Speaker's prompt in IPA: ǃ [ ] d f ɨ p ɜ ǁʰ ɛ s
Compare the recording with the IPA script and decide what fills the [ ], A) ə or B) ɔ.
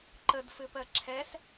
A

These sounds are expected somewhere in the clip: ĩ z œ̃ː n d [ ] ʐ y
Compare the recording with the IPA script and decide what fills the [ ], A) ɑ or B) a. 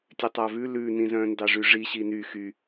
A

